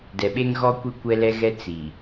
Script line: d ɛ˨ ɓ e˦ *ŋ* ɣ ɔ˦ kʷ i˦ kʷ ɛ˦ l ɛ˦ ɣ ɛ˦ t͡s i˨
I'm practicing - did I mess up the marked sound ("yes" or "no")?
no